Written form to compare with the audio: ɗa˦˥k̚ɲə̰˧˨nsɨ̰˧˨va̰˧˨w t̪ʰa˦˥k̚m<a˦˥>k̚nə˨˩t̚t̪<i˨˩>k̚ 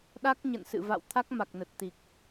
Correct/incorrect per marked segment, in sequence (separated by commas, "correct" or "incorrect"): incorrect, correct